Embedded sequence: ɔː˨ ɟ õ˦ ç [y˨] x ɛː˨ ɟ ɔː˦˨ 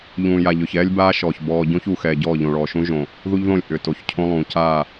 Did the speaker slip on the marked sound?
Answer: yes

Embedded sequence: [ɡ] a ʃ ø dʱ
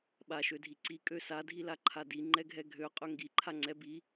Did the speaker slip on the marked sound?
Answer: yes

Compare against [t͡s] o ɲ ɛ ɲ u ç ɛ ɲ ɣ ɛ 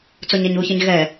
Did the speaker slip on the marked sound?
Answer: no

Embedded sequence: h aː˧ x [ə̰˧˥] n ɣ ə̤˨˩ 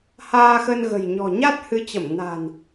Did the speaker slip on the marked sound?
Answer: yes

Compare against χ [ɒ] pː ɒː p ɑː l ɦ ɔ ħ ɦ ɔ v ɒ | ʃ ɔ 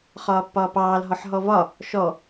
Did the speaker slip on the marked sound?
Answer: yes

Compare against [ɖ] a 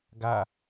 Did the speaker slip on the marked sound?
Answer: yes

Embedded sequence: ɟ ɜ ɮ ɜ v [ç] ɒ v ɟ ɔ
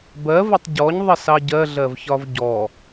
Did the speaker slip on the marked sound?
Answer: no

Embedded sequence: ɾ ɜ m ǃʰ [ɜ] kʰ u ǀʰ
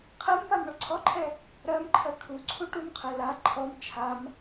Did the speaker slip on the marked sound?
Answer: no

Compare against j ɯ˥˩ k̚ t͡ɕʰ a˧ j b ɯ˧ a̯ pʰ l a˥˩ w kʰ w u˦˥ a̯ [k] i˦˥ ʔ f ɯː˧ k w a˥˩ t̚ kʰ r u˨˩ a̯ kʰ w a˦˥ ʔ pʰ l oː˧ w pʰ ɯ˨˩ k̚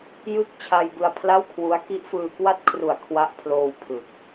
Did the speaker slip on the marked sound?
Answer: no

